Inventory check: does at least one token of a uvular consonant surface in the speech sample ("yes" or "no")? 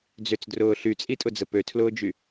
no